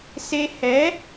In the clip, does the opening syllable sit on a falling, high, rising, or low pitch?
high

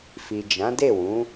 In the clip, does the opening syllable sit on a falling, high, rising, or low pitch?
low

